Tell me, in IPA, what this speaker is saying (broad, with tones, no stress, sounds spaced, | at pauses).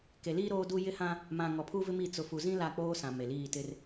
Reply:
k e˨ l iː˦ ɾ oː˦ d u˦ j ɪ˦ h ã˦ | m ã˨ ŋ ɔ˨ pʰ u˦ v ɪ˦ m i˨ t͡s ʊ˨ f u˨ z ĩ˦ l a˦˨ k͡p oː˦ s ã˨ m e˨ l iː˦˨ t ɪ˦ r